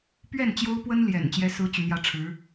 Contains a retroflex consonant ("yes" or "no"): yes